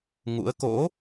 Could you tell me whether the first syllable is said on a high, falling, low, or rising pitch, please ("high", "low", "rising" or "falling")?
rising